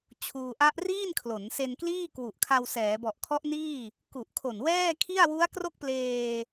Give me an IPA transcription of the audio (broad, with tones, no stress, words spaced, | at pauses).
t͡ɕʰuː˧ʔa˦˥ʔ riː˥˩nkʰlo˩˦n se˧nkliː˥˩kwu˨˩ʔkʰa˧w sɛː˩˦bɔ˨˩ʔkʰɔ˦˥ʔniː˥˩ | ku˨˩ʔkʰo˨˩nwɛː˥˩kʰi˥˩a̯ wu˦˥a̯kro˥˩k̚pleː˧